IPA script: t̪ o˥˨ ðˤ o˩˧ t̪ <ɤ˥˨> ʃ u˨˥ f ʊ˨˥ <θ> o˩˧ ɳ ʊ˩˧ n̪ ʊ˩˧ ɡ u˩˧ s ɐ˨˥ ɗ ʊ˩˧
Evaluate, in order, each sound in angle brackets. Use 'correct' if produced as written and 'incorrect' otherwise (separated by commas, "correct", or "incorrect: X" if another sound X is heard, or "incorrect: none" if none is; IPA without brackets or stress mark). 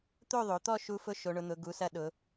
incorrect: ɔ˥˨, incorrect: ʃ